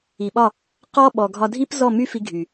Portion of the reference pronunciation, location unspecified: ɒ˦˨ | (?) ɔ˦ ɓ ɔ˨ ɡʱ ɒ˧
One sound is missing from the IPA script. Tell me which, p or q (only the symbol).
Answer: q